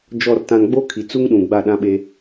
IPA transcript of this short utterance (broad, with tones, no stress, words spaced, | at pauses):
d͡ʒɔ˨rtã˨n ɡ͡bo˦ kʰi˨t͡su˦ŋɗũ˨ ɡ͡ba˦˨ɗã˦ɓe˦